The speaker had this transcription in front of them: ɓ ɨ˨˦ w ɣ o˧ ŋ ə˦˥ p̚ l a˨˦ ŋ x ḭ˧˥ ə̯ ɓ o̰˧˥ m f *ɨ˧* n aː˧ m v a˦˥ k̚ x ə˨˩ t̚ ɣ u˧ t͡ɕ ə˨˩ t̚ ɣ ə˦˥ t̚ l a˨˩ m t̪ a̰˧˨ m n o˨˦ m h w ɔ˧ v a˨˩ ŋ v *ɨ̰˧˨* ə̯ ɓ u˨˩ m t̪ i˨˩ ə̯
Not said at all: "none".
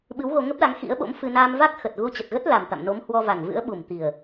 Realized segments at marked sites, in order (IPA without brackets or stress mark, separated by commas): ɨ˧, ɨ̰˧˥